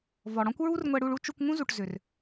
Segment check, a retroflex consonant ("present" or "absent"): present